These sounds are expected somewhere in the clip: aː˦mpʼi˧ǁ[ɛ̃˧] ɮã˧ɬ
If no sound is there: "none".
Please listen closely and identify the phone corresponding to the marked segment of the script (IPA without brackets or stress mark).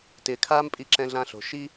ɛ̃˧